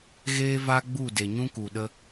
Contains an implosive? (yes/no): yes